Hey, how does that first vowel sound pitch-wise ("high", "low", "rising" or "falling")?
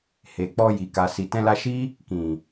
low